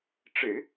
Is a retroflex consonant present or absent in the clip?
present